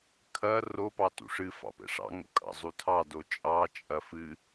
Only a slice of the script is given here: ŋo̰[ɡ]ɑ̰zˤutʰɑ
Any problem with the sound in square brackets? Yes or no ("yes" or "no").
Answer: yes